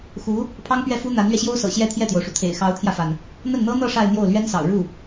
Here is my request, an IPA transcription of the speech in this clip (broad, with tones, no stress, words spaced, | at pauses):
xu˧˥ | pʰɑ˥ŋpɥɛ˥˩fu˥ n̪a˧˥nlɥɛ˧ɕjo˥ʊ̯sɤ̰˨˩ ɕjɛ˥˧t̪ʰjɛ˥˩t̪jo˩ʊ̯ʂu˩ t̪ʰḛ˨˩ɪ̯xɑ˧˥ʊ̯t̪ʰjä˧fa˩n | n̪ə˥˩nn̪ɤ˥n̪ɤ˥˧ ʂa˥˧ɪ̯n̪jo˥˩ʊ̯lɥɛ˥nsɑ̰˨˩ʊ̯ ɻu˥˩